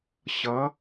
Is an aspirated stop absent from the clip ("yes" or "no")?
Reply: yes